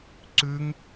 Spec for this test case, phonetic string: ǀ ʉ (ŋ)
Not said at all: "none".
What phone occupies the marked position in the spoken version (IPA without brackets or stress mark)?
ŋ